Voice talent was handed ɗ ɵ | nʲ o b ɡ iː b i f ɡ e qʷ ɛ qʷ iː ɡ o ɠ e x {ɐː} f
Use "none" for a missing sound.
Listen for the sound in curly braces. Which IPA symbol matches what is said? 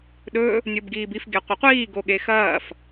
ɐː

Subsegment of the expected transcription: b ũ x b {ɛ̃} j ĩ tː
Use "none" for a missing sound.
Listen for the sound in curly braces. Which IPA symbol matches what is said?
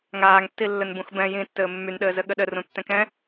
ɛ̃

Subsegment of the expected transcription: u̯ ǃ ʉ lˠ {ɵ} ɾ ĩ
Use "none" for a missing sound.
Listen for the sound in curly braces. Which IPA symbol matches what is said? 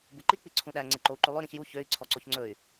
ø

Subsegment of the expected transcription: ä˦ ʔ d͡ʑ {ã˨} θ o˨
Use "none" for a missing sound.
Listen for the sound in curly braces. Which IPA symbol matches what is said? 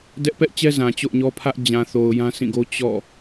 ã˨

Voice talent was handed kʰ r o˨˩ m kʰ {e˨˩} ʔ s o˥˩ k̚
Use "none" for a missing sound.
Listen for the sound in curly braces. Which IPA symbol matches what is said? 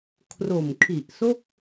i˨˩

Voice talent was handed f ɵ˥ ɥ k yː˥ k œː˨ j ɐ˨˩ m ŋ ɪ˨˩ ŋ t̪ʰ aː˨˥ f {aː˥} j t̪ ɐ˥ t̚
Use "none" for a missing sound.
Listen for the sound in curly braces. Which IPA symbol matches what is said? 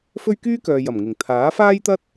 aː˥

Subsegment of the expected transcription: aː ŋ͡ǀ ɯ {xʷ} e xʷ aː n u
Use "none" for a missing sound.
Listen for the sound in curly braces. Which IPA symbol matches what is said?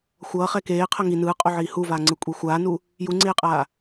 kʷʼ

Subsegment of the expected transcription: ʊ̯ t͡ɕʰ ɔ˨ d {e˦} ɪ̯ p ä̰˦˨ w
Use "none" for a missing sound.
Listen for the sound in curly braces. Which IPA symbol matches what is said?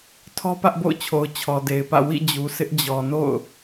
e˨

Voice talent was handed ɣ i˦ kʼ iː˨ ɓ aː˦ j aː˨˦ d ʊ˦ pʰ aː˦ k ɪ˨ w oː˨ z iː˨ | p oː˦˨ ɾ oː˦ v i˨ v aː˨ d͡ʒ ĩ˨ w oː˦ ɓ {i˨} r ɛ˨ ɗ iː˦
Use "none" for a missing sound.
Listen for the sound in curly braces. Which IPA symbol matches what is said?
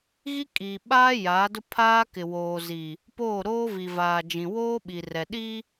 i˨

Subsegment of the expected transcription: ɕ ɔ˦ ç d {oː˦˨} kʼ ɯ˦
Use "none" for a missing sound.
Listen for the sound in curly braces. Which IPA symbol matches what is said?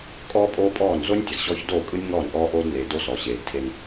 oː˦˨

